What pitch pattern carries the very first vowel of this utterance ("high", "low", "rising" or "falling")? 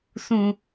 high